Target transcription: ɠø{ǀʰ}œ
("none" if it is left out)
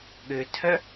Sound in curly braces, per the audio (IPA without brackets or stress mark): tʰ